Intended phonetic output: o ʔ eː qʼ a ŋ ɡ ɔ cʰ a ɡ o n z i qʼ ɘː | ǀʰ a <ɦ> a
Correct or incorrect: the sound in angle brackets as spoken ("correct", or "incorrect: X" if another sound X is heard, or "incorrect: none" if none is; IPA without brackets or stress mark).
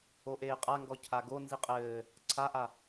incorrect: ʔ